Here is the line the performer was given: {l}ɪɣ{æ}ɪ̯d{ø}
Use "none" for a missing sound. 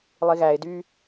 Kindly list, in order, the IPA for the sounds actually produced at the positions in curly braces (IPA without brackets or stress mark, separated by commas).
lˠ, æ, y